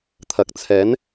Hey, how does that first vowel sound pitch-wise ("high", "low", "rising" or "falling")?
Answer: low